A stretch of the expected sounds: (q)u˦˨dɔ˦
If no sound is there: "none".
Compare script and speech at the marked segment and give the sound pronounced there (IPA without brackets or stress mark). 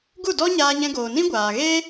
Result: ɡ